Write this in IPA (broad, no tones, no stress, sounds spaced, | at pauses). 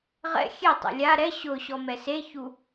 ʁ ɛ̰ xʲ e tˤ ɛ̰ lʲ a ɾ ɛ ɕ ʊː ɕ ɔ m ɛ s e ç u